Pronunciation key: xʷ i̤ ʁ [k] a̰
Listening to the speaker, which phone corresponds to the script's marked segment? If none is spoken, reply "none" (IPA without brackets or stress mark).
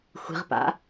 p